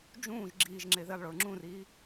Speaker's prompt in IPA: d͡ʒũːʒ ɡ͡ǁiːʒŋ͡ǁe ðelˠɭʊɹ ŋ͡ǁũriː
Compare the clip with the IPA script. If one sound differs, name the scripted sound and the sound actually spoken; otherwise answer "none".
none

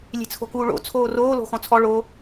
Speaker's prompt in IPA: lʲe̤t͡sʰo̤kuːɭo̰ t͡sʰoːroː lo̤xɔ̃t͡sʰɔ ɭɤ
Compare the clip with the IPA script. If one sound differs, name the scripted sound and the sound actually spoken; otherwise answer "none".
ɤ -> o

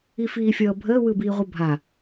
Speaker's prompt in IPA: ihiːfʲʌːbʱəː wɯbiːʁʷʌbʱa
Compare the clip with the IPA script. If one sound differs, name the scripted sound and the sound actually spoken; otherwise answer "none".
h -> f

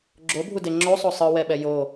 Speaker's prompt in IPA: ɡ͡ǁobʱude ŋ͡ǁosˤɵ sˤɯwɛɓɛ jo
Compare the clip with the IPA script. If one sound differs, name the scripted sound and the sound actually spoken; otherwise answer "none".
ɵ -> o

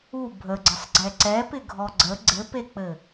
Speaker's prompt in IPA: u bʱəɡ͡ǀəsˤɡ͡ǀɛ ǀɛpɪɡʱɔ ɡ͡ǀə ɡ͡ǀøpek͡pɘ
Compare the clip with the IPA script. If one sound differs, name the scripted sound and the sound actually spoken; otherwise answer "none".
ø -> ɘ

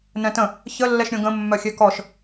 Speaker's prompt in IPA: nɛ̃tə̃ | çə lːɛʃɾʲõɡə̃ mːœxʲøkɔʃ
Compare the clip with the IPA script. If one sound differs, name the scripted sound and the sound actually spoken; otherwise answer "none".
none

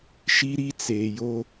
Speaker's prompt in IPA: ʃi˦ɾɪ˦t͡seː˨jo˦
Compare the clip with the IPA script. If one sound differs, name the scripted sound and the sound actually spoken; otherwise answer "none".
ɪ˦ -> i˦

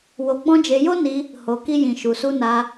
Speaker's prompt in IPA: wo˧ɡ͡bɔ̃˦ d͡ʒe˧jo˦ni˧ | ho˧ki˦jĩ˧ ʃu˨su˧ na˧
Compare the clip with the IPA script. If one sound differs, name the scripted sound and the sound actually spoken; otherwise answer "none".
none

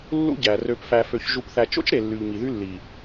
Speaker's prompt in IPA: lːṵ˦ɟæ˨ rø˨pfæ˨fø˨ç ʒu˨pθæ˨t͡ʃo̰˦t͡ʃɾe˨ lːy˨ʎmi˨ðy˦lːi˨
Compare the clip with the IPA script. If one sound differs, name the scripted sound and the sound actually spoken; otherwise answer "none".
none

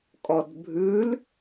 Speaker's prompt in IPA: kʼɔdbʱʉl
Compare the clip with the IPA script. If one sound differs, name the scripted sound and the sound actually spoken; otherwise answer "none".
none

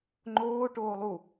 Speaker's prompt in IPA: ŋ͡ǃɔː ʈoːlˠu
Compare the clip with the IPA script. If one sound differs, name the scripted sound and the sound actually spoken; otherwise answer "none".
ɔː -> oː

